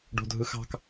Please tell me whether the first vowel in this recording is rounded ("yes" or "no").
yes